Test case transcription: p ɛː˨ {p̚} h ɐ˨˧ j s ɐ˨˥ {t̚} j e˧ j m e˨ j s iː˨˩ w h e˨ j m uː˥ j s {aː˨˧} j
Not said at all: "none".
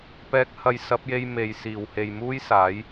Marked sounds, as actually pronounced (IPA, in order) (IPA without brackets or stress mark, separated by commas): k̚, p̚, aː˨˥